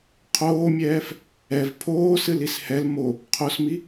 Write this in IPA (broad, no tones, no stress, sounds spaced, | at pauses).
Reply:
qʰ oː mʲ ɛː f | ɛ v pʰ oː s ɨ l i s h ɛ l m o | qʰ o s m i